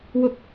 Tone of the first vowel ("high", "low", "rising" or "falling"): high